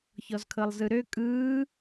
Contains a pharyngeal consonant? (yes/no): no